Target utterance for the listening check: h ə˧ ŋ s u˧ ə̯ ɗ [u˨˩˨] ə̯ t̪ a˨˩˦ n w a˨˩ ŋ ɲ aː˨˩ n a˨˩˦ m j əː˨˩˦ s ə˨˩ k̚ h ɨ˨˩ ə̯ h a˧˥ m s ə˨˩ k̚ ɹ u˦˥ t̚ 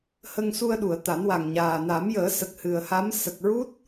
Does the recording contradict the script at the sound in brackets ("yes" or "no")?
no